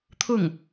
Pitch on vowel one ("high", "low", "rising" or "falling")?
falling